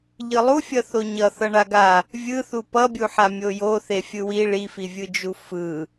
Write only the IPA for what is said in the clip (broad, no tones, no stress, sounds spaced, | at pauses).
ʎ ɯ lˠ u fʲ ʌ θ o ɲ ʌ θ ʌ ɳ a ɡ a | vʲ ɯ θ u p ʌ bʲ u ħ a mʲ o j o θ e fʲ ɯ w i ɭ i f i vʲ ɯ d͡ʒ u f ɯ